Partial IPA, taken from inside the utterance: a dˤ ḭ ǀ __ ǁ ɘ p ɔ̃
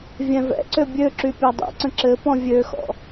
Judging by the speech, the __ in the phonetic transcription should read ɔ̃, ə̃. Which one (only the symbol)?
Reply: ə̃